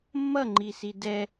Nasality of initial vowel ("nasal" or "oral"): oral